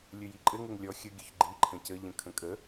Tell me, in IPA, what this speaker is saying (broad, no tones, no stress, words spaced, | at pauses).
lʲɵjiǃʼɘ ŋɘŋlʲɔ xʲə ɡʲɵçɡ͡ǃi ǃʰə̃cə ʎə̃kʰə̃kʼə